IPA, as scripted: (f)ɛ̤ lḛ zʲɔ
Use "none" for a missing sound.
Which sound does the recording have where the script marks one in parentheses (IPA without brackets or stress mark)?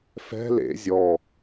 f